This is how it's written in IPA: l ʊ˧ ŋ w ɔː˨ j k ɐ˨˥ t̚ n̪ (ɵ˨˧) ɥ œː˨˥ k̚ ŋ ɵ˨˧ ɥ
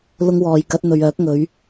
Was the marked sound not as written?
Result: yes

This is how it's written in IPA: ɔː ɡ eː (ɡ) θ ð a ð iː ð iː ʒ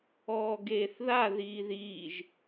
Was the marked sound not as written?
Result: yes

